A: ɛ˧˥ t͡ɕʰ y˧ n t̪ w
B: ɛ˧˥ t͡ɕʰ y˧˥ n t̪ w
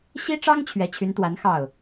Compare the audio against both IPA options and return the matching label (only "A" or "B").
B